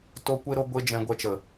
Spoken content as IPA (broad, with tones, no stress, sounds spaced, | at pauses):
t o˧ kʷ e˧ ɾ o˧ ɡʷ e˧ d͡ʒ ɛ̃˧ ɡʷ ɛ˧ t͡ʃ ə˨